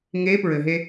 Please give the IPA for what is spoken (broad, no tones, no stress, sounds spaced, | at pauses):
ŋ e p ɹ ɘ ɦ e